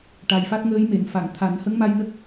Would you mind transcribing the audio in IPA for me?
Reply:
ʈ a˨˩ j f a˦˥ t̚ ŋ əː˧˥ j m e˨˩˨ n f a˨˩˨ ŋ t̪ʰ a˨˩˦ n h ə˧˥ ŋ m a˧ j n ə˦˥ k̚

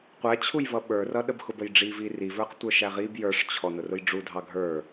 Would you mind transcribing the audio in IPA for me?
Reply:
qʷ æ t͡ɕʰ u j v ʌ ɓ ə˞ r ʌ ɗ ə b x ʊ b ə j ɖ͡ʐ i v i r i v ə˞ q tʷ ə˞ ʃ æ ʁ i b j ə˞ ʂ t͡ɕʰ ɔ n ʊ r ʊ j ɖ͡ʐ u dʱ ɑ ɡʱ ə˞

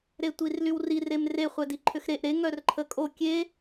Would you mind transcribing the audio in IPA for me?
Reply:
ɾ e tʷ i r l y w r i r e m r e χʷ ɛ d i ǃʰ ʏ x ɾ e ʔ ɾ e ŋ œ r ǃʰ ə kʼ o kʲ e

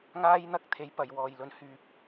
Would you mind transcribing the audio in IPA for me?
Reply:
ŋ aː˧ j n̪ ɐ˧ k̚ t̪ʰ e˨˧ j p ɐ˨ j w ɔː˨ j l ɵ˨ n h yː˨ p̚

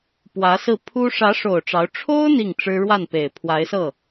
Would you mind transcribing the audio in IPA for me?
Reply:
p w ä˧˥ s ɹ̩˥˩ pʰ u˥ ʂ ä˧˥ ʂ o˨˩ ʊ̯ ʈ͡ʂ ɑ˧˥ ʊ̯ ʈ͡ʂʰ o˥ ʊ̯ n̪ i˥˩ ŋ ʈ͡ʂ ɻ̩˥ ɻ w a˥˩ n p e˨˩ ɪ̯ pʰ w a˧˥ ɪ̯ s ɤ˥˩

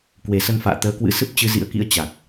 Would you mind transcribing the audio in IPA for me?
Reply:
k w e˨˩ s ə˧ n f a̰ː˧˨ t̪ əː˨˦ k w ɨ̰˧˥ s ɨ˦˥ p̚ t͡ɕ ɨ˧ z ḭ˧˥ ə̯ k ḭ˧˥ ə̯ t͡ɕ a˨˩ k̚

